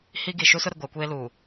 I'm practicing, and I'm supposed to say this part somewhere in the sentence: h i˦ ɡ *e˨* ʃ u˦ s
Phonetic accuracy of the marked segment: incorrect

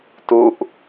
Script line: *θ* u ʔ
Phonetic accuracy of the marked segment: incorrect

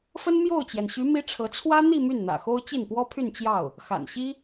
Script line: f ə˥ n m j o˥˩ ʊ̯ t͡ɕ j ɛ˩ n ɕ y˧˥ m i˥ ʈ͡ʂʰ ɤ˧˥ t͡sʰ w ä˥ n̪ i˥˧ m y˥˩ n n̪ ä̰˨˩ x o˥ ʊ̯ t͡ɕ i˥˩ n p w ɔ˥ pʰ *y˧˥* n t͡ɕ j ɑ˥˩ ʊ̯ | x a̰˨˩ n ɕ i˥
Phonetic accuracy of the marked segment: incorrect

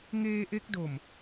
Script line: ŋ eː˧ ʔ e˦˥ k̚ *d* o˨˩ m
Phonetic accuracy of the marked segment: correct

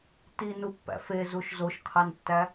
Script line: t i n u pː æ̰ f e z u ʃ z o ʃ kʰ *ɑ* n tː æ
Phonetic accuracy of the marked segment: correct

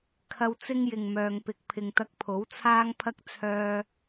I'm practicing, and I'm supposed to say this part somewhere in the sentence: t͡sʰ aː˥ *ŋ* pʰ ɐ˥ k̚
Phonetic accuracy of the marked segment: correct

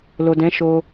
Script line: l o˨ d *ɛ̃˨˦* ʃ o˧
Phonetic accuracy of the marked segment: correct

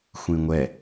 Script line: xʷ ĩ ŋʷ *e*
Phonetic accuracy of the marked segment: incorrect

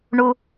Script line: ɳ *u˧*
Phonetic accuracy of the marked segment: correct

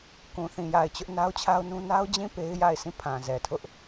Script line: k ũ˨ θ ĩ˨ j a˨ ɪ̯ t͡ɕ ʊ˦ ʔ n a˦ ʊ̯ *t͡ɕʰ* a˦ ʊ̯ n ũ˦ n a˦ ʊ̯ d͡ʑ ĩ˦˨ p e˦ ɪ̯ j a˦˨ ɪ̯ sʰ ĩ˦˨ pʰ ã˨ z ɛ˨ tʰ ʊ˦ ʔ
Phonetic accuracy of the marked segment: correct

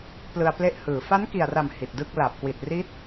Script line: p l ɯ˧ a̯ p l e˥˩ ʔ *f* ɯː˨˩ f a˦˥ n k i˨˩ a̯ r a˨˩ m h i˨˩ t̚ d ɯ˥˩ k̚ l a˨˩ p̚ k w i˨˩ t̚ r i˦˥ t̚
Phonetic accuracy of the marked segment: incorrect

